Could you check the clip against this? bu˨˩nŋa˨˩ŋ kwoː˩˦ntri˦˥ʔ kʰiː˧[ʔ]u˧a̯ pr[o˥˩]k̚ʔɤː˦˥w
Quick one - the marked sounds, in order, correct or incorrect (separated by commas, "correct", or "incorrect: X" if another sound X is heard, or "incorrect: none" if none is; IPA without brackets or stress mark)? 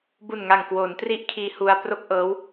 incorrect: h, correct